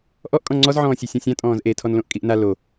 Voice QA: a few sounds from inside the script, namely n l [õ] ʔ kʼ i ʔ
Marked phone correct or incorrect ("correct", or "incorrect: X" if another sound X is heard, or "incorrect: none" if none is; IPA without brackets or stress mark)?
correct